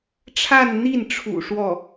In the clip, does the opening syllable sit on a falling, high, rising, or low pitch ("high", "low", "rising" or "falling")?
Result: falling